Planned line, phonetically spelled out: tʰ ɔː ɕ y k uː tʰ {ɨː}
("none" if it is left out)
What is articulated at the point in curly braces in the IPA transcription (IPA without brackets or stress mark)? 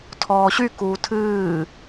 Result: ɨː